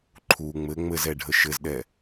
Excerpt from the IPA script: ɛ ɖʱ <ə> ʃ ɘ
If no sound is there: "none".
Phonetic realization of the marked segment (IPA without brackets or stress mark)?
ə